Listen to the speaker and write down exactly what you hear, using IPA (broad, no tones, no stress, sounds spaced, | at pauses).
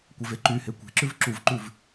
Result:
kʷ e v e ǃ y h e kʷ e̤ ǁ ʉ v ǁ u v ǃ ʉ v